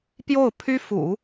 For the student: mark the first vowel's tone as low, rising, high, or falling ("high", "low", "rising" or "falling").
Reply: falling